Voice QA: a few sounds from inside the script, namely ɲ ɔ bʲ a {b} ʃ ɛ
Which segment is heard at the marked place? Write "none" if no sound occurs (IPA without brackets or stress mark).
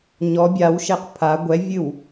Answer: w